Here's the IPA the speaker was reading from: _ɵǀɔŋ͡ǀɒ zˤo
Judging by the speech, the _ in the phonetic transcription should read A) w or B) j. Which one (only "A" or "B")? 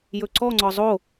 B